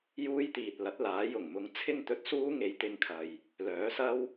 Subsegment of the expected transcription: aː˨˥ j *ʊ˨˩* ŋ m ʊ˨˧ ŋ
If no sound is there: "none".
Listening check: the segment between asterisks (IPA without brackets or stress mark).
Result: ʊ˨˩